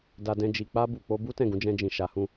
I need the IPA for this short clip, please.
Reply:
da˧dɛ̃˧ d͡ʒi˨k͡pa˧bu˨k͡po˧ bu˦tɛ̃˦˨ɡũ˨˦ d͡ʒɛ̃˧d͡ʒĩ˨ʃa˨˦hũ˧

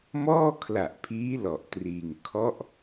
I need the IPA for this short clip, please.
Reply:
mɔː˥˩kʰla˨˩ʔpʰiː˦˥ lɔ˨˩ʔtriː˧ŋ kʰɔ˦˥ʔ

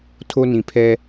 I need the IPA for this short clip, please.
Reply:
tʰo˦nĩ˨pʰɛ˦

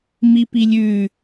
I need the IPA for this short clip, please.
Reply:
mipilʲʉ

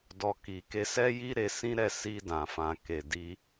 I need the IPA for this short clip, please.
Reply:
dɔ˨ki˨ ke˧sɛ˦ji˦ ɾe˧sĩ˦ɾɛ˦˨ si˧ dã˨ fã˨ke˨di˧

